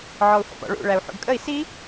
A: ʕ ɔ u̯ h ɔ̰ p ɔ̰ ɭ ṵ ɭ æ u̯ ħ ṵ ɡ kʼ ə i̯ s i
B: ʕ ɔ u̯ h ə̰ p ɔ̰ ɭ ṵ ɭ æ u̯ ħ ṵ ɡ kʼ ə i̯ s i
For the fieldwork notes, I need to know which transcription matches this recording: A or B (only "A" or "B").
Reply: B